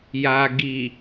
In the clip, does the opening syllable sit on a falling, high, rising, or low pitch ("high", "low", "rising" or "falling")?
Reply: low